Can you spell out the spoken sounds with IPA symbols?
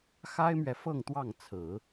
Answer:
x a˥ ɪ̯ m ɥ ɛ˨ f ɤ˥˧ ŋ t̪ w ɑ˥˩ ŋ t͡sʰ ɹ̩˨˩˦

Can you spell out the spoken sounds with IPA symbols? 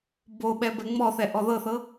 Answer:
b o ɓ ɛ b ɛ ŋ͡m ɔ θ ɛ ʔ ɔ ð ɤ θ ɤ

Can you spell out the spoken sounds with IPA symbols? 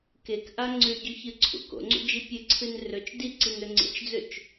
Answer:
k e k ʔ a ŋ͡ǀ ʉ ɟ ʉ ç ɨ ǀʰ ṵ k o̰ ŋ͡ǀ ṵ d͡ʒ i pʲ ɨ ǀʰ ɨ n r ɵ t͡ʃ d i ǀ i n ɵ ŋ͡ǀ ḛ t͡ʃ d͡z ɵ t͡ʃ

